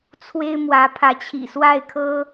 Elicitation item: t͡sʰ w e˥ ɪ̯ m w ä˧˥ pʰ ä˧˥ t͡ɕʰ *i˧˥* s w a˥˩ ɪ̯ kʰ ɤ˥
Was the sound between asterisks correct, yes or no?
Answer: no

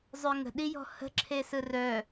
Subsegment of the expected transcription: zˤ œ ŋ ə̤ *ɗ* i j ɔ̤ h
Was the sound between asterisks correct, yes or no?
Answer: yes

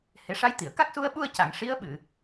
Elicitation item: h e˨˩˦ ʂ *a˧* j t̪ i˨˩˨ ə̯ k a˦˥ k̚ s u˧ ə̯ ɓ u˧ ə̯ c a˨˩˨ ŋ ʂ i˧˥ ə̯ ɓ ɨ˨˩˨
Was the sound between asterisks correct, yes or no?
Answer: no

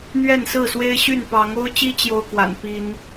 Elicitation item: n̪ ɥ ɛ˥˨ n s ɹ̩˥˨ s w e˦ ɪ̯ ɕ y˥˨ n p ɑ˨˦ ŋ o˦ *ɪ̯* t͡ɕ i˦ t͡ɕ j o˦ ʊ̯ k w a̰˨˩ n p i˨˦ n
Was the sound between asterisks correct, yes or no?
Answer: no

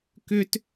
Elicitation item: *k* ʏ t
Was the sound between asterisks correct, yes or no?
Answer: yes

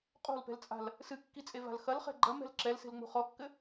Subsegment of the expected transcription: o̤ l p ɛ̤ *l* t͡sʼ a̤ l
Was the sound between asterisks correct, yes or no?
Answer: yes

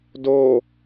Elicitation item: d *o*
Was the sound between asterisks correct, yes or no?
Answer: yes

